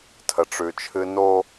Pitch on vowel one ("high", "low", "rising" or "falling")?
low